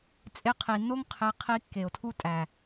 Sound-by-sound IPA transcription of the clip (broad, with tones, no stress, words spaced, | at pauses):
t͡sʼe˧qʰi˨nːo˦ŋ qʰe˦ qʰi˧ kːe˨o̯tʰu˦tʼæ˨